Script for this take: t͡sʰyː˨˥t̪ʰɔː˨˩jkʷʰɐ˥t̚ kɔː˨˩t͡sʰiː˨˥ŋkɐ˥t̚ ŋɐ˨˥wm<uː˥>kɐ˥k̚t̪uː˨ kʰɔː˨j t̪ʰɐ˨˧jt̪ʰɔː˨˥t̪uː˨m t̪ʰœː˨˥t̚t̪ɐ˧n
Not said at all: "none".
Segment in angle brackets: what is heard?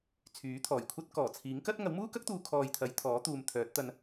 uː˥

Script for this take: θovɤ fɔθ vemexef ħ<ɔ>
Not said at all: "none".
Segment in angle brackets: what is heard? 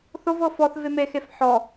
ɔ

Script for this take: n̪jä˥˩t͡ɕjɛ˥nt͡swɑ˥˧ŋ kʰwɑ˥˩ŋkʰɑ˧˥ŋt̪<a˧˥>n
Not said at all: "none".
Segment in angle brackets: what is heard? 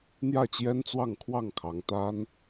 a˥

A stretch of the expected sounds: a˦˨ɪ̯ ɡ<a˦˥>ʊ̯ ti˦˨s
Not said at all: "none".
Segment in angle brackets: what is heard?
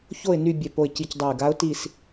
a˦˥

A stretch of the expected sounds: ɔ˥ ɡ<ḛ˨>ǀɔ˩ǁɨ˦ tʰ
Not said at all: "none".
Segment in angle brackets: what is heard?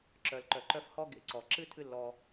ḛ˨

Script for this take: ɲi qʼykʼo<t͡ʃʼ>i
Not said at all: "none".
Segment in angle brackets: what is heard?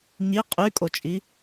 t͡ʃʼ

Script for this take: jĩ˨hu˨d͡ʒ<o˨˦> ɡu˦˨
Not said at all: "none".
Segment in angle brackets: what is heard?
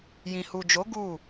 o˨˦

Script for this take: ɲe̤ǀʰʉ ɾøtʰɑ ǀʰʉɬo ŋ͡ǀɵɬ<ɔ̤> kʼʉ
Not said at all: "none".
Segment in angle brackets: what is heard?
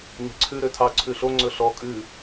ɔ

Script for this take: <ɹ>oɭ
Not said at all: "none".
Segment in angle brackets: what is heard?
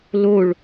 l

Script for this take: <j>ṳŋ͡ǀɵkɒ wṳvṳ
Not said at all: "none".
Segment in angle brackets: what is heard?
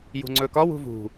j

